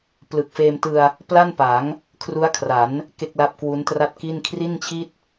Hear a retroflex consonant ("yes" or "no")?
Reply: no